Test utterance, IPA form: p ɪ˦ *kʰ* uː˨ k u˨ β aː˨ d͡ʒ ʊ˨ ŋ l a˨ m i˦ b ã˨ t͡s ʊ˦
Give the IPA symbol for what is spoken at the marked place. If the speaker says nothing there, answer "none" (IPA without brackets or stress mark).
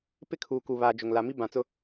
kʰ